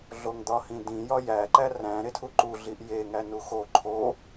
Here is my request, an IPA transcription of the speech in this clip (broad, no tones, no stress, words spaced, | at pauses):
ɮoŋd̪ɒhĩdĩ jɒjæ ǃæræ̃ ɾetʰuǃu ɮiʔje ŋænuxo ǃʰo